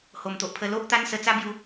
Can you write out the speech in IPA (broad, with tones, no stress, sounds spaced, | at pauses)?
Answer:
h o˨˩ m t̪ o˨ ʔ pʰ ə˧ l o˦ ʔ t̪ a˦ n s ə˧ t͡s a˦ b j u˧